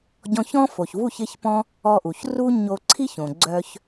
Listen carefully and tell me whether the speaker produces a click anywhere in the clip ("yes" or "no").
yes